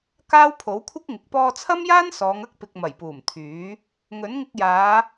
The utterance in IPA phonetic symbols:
k aː˥ w pʰ o˨˥ w kʷʰ ɪ˥ k̚ ŋ ɪ˨ k̚ p ɔː˧ t͡sʰ ɐ˥ m j aː˥ n s ɔː˨˧ ŋ ɐ˥ k̚ p ɪ˨ k̚ m ɐ˨˩ j p uː˨˩ m t̪ʰ yː˨˥ | ŋ ɵ˨˥ n ŋ ɪ˧ k̚ j aː˨˧

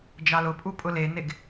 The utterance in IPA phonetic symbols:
d͡ʒ ɑ l ʊ pʼ u pʼ ʊ l e n e ɡ

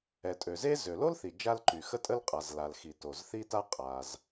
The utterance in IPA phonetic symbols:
ɛ˩ tʼ ø˩ z e˥ z ø˩ l o˥ l θ i˩ d͡ʒ a˥ l ǃ y˩ x ə˥ tʼ ə˥ l qʼ a˩ z l a˩ l x i˩ t o˩ z θ i˥ t a˥ qʼ a˩ z

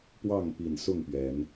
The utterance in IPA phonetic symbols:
p w ɑ˥˨ ŋ p i˨˩ n s ʊ˥˨ ŋ p ɥ ɛ˨˦ n

